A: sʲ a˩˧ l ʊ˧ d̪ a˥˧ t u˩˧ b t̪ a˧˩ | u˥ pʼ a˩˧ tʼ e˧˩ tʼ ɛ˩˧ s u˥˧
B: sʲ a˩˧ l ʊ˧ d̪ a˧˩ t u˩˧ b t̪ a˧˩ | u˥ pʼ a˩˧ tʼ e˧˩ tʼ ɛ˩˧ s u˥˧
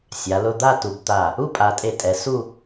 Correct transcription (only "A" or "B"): A